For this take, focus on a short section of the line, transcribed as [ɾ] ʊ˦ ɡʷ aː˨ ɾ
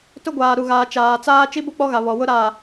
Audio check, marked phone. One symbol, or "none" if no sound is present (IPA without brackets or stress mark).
t